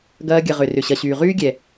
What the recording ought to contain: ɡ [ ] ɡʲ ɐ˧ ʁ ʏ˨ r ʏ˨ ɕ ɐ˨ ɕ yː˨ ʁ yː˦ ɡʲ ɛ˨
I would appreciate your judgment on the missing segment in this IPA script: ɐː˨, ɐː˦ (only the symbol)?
ɐː˦